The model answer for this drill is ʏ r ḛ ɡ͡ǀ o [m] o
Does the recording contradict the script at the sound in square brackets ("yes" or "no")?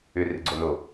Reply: yes